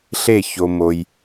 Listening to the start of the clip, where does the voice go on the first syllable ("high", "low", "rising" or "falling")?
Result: falling